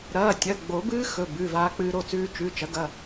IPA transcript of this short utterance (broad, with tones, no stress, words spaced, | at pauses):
ɾɐː˩˧˩tʲɐ˩˧˩ ɡ͡bo˨˩˦bɨː˦˥ xɵ˩˧˩bʉ˩˧˩ vaː˧k͡pɨː˧ɾo˥˩ t͡sʉː˧t͡ʃʉ˩˧˩t͡ʃɐ˩˥ɡɐ˩˧˩